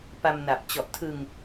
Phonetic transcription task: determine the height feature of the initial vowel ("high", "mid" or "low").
low